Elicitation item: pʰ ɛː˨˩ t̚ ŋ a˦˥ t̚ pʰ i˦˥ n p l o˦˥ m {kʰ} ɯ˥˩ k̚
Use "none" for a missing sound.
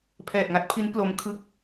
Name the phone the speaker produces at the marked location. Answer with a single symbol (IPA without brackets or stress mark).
kʰ